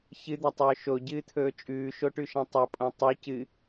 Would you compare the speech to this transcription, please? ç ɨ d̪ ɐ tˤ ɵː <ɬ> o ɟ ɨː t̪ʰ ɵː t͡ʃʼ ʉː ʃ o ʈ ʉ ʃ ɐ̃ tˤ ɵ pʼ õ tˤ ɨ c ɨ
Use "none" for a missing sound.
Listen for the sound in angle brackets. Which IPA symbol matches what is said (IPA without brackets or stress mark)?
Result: ʃ